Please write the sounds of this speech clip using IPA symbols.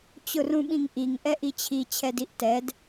t͡ɕ ʊ r ũ ɓ ĩ ŋ ʔ i ŋ ʔ ɛ ʔ i t͡ɕʰ i t͡ɕʰ ɛ d i ʔ t ɛ d

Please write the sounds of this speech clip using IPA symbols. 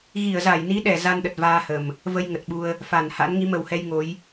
ɣ i˧˩ ə̯ z a˧˩ j n i˨˦ ɗ ɛ˧˩ z a˧ n ɗ ə˨˩ t̚ v aː˧ h ə˨˩ m | v ə˧ j ŋ ə˨˩ t̚ ɓ u˧ ə̯ | f a˧˩ n h a̰˧˥ n ŋ i˨˦ m ə˧˩ w h ɛ˧ j ŋ o˨˦ j

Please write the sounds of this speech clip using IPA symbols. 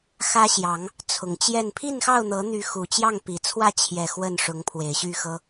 x ä˦ ɕ j ɑ˨˦ ŋ | t͡sʰ ʊ˨˩ ŋ t͡ɕ j ɛ˥˨ n pʰ i˥˨ n x ɑ˥˨ ʊ̯ n̪ ɤ˨˦ n̪ y˨˦ x u˨˩ t͡ɕ j ɑ˥˨ ŋ p i˨˩ t͡sʰ w ä˥˨ t͡ɕʰ j ɛ˨˩ x w ə˥˨ n ʂ ʊ˨˦ ŋ pʰ w e˨˩ ɪ̯ ɕ y˥˨ x ɤ˦

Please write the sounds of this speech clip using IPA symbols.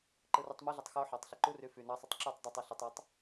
ǃ ɯ r y tˤ m ɯ ɮ i tˤ x o ħ ɑ tˤ ɬ e ǃ u r y f y n ɑ sˤ y tˤ ǁ y tˤ dˤ u tˤ e ɬ e tˤ j e tˤ

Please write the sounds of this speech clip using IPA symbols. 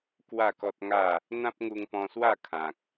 k w a˥˧ k ɔ˦ t̚ ŋ a˥˧ | n̪ ã˦ p̚ ŋ u˧ ŋ p ɔ̃˧ s w a˥˧ kʰ ã˨ k̚

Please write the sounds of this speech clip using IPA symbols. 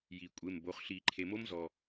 j i˩ kʷʼ e˩˧˩ m b o˩˧˩ χ ɬ i˧˩˧ ǃʰ e˩ m o˦˥ m z ɔ˩

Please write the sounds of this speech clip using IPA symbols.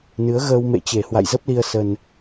n ɨ˨˦ ə̯ ɣ əː˧ w m ḛ˧˨ t͡ɕ e˨˩ h w a̰˧˨ j z ə˦˥ p̚ l i˧ ə̯ s ə˧ n

